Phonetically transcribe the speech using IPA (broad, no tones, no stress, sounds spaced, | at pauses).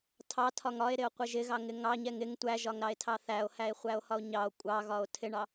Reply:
tʰ ɑ tʰ ɒ ŋ ɒ e̯ ɾ ɪ o̯ qʷ ɪ ʒ ɪ ɣ ɑ ŋ ɪ ŋ ɑ ɲ ɛ ŋ ɪ ŋ tʷ æ ʒ ɒ ŋ ɾ ɑ e̯ tʰ ɑ θ æ o̯ h æ e̯ χʷ æ o̯ h ɒ o̯ ɲ ɑ o̯ kʷʼ ɑ ɣ ɒ o̯ tʰ ɪ ɳ ɑ